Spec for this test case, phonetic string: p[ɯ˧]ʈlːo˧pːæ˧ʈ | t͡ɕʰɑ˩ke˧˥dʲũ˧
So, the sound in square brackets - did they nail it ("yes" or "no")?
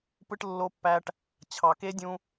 yes